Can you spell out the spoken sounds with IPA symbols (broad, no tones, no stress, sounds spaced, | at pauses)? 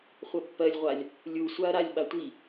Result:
χʷ ʌ pː ɜ lʲ ʁʷ a lʲ | lʲ u sʷ a ɐ̯ ɾ a lʲ ɓ a tʷ i